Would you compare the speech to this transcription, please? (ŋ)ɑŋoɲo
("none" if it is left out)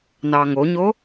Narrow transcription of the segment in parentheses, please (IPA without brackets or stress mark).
n